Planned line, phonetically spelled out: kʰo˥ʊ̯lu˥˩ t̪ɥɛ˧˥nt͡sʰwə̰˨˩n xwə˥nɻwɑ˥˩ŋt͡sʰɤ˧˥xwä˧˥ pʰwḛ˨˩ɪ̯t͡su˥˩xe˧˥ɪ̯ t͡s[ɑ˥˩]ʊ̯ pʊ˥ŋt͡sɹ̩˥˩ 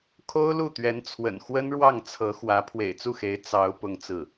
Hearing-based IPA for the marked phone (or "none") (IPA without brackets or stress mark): ɑ˧˥